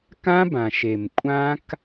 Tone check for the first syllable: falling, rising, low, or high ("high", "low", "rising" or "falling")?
high